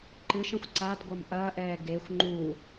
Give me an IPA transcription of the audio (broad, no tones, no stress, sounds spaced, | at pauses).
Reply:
ǃ ɨ ʃ ə̃ xʷ ǀ a d ɡʷ ʌ m ʔ ɐː ʔ ɛː ɡ e xʷ ŋ͡ǃ u